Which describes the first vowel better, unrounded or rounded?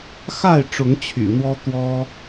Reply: unrounded